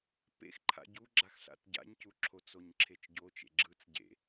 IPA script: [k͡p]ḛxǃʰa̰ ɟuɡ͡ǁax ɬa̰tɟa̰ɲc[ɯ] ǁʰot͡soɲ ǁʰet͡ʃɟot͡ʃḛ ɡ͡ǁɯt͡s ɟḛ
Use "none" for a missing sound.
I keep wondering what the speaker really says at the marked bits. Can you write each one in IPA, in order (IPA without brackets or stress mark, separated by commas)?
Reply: p, u